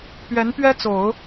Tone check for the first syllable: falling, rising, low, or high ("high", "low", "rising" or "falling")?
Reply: rising